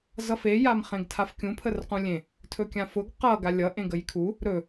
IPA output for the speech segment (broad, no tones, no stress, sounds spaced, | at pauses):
z ʌ f e j a m χ ẽ ɡ tʰ a f kʲ ũ pʰ ə r q ũ lʲ ẽ | tʰ ɵ kʲ ã f ʊ ɡ q ʌ ɡ a lʲ ʌ ʔ ẽ ɡ ə j kʰ u | ɾ ɵ